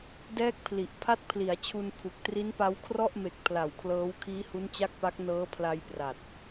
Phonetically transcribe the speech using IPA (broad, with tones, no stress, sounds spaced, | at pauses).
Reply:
d ɛː˥˩ k̚ pʰ l i˨˩ ʔ pʰ a˥˩ t̚ pʰ l i˩˦ a̯ t͡ɕʰ u˧ n pʰ u˨˩ k̚ t r i˦˥ n p a˦˥ w kʰ r ɔ˥˩ ʔ m e˨˩ k̚ pʰ l a˨˩ w kʰ l ɤː˦˥ w kʰ iː˦˥ h u˦˥ n t͡ɕ a˥˩ k̚ p a˦˥ k̚ n ɤː˦˥ pʰ l a˧ j p r a˨˩ t̚